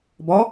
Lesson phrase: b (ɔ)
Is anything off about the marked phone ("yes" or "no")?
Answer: no